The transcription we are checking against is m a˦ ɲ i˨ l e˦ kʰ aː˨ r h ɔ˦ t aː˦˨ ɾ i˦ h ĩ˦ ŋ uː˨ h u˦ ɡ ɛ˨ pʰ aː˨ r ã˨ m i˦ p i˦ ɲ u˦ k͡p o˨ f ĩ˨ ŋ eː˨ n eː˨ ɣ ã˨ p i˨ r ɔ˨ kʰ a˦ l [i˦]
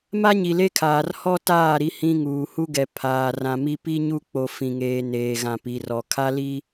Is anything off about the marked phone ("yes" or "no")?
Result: no